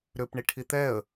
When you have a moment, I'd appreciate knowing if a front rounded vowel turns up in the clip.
yes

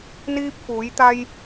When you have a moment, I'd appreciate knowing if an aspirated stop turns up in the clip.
no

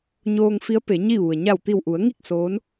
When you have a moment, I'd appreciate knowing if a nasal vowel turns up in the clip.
no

